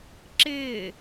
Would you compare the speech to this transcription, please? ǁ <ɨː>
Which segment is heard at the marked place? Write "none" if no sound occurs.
ɪː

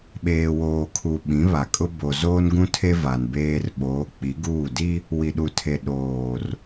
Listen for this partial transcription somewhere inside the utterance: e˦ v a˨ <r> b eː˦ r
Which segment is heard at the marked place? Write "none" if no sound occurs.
n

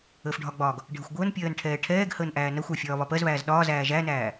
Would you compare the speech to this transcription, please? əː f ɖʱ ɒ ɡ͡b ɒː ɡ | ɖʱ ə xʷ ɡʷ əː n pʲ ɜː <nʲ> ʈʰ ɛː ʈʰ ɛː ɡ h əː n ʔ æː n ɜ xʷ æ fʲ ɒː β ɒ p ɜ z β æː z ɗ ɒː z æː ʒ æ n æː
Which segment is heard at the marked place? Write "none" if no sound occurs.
n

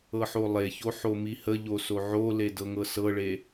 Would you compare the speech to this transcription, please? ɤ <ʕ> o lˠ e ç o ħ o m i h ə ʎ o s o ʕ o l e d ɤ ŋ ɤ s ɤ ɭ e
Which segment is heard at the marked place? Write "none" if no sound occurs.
ħ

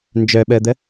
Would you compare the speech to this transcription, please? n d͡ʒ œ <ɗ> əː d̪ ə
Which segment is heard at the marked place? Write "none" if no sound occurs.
ɓ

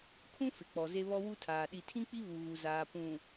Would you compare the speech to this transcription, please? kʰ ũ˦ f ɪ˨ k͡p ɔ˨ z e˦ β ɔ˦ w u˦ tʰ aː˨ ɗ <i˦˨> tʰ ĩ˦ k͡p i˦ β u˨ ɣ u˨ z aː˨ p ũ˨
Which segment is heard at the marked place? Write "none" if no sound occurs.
i˨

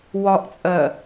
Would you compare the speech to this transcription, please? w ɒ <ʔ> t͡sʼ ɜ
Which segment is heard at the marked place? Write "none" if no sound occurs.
ʔ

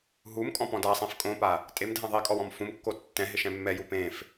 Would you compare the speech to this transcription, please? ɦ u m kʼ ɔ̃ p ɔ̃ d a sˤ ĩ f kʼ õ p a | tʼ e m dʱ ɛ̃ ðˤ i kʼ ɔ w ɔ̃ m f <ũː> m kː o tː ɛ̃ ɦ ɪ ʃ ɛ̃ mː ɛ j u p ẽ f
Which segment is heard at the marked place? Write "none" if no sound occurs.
ũ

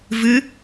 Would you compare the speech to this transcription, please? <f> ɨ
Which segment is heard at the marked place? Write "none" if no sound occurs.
v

